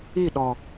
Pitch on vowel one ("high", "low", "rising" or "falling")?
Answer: falling